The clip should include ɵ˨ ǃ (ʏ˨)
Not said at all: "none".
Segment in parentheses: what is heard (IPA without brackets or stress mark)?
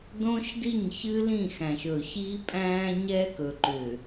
ʏ˨